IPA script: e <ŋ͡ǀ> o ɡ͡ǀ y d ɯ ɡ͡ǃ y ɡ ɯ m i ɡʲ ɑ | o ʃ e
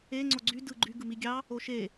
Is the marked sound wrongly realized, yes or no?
no